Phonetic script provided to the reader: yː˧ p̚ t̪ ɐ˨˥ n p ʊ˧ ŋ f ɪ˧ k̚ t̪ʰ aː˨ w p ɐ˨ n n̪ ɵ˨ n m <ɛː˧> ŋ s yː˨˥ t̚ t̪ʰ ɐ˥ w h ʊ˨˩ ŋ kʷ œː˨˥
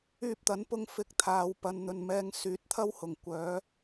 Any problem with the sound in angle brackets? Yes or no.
no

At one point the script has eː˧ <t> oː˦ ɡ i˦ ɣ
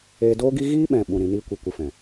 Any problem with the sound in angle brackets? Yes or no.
yes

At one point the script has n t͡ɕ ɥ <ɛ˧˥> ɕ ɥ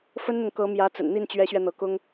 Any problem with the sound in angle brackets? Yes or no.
no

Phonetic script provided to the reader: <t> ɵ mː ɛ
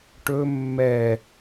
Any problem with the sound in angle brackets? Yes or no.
yes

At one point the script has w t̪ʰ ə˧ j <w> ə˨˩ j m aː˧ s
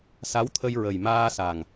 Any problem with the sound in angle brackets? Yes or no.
yes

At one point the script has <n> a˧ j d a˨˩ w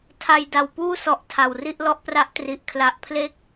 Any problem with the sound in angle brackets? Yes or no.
yes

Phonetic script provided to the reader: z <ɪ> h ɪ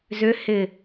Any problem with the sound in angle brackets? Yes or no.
yes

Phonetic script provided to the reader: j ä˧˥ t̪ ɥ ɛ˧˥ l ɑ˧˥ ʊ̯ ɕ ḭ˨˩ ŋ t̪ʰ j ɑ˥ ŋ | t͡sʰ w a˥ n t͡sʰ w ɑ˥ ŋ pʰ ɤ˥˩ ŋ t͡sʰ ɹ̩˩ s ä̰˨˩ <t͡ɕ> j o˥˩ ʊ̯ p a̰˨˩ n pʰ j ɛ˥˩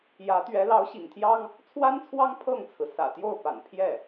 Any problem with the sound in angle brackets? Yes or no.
yes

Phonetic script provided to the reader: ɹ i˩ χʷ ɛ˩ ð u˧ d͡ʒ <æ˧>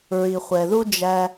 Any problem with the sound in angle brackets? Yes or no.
no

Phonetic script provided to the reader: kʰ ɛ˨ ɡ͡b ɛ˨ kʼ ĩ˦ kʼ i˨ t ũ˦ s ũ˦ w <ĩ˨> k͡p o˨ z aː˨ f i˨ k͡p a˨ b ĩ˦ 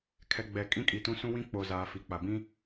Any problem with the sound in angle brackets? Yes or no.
yes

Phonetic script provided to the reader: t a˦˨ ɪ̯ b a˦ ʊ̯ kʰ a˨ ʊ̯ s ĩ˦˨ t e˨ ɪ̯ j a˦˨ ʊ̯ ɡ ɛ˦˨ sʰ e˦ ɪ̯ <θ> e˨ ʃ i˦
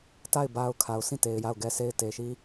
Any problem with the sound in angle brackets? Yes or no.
yes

